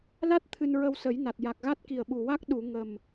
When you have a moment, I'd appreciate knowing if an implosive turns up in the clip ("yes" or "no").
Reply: yes